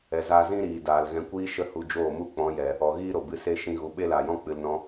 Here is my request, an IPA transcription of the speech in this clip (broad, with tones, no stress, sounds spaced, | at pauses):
ɛ˨ z aː˧ z ĩ˦ ɾ iː˨ d aː˨ l ɣ ɛ̃˧ kʷ iː˦ ʃ ə˦ h u˧ d͡ʒ oː˦˨ m u˦ k͡p ɔ̃˨˦ j ɛ˨ | ɔ˨ ɣ iː˦ ɾ o˨ b ɨ˨˦ s e˦˨ ʃ ĩ˧ ɣ u˨ ɓ e˦ l aː˨ j ɔ̃˦ k͡p ɨ˨ l n ɔ̃˦